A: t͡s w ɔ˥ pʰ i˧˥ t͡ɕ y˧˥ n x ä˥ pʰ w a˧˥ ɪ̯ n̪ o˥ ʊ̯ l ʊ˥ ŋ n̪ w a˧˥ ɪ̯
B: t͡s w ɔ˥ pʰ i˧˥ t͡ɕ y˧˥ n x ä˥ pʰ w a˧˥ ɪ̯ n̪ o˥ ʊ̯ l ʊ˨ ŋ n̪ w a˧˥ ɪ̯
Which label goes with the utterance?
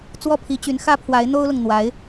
B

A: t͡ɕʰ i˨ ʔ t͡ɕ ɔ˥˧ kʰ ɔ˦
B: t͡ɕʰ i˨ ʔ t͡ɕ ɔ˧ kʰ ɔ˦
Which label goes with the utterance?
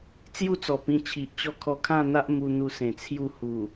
A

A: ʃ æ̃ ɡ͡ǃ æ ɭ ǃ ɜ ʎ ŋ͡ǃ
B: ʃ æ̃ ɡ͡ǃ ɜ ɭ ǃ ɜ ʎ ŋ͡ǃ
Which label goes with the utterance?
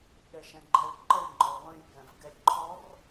A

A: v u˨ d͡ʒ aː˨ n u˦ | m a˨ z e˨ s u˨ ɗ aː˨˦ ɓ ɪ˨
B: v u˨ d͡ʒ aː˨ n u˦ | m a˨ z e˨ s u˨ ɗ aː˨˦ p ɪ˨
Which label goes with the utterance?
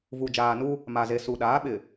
A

